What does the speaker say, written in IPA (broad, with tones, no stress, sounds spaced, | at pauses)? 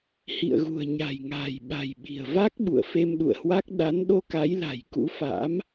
h ḭ˧˨ ə̯ ɣ ṳ˨˩ ə̯ ɲ a̤˨˩ j ŋ a̤ː˨˩ j ɓ a̤˨˩ j ɓ i̤˨˩ ə̯ v a˦˥ k̚ ɓ ṵ˧˨ ə̯ f e˧ m ɗ ṵ˧˨ ə̯ h w a˦˥ k̚ ɗ a˨˦ n ɗ o˧ k a˨˦ j l a̤˨˩ j k ṵ˧˥ f a̰ː˧˥ m